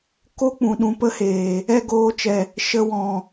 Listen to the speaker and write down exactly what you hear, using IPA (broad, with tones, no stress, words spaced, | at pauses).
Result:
ko˦ k͡pũ˨ ɗũ˧pə˦heː˨ | ɛ˦˨ɡoː˧t͡ʃɛ˨ | ʃə˧wɔ̃˨